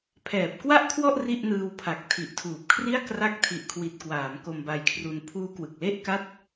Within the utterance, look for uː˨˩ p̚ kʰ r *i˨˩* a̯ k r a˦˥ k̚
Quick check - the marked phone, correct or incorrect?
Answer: incorrect